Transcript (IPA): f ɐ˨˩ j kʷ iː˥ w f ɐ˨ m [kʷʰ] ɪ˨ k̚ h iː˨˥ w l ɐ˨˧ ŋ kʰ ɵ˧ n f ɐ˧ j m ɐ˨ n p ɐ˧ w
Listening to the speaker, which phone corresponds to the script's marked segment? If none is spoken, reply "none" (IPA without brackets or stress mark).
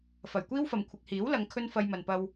kʷʰ